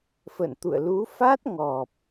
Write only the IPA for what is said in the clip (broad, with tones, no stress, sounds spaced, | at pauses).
f ə̰˧˨ n t̪ ṵ˧˨ ə̯ l u˨˦ f a˦˥ t̚ ŋ ɔ˨˩ p̚